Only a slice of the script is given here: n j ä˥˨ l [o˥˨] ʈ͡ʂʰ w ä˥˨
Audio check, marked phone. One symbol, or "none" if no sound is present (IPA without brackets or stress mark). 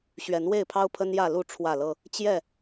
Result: u˥˨